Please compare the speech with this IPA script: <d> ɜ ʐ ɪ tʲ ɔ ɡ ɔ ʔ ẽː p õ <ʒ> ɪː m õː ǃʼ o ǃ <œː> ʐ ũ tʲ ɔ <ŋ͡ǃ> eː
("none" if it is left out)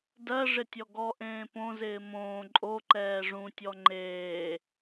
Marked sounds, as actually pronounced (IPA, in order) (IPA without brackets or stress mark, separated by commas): d, z, ɛː, ŋ͡ǃ